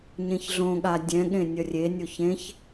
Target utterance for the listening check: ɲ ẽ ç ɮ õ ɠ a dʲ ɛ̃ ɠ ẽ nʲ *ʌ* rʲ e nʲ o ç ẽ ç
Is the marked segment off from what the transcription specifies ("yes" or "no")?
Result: no